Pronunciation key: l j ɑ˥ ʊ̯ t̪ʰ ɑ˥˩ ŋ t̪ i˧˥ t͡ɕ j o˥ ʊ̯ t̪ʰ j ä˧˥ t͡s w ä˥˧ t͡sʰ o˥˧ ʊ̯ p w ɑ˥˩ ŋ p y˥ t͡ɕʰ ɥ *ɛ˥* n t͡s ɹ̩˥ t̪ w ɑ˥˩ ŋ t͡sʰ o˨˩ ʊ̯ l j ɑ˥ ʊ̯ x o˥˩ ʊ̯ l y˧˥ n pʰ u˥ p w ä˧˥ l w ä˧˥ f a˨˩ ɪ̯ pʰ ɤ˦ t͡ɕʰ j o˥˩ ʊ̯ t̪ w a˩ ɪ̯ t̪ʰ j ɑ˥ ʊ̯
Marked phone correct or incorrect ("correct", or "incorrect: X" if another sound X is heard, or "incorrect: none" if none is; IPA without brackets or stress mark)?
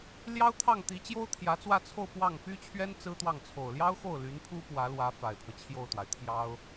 correct